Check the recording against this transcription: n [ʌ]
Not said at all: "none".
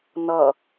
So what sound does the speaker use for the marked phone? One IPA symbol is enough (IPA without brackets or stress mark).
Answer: ʌ